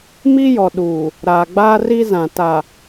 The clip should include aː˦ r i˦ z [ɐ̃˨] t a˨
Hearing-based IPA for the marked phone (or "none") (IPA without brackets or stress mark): ã˨